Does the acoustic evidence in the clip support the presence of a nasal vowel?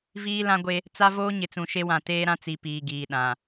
yes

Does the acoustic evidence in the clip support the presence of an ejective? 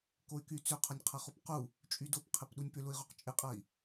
yes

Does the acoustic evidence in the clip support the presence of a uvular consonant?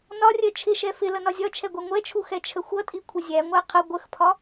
yes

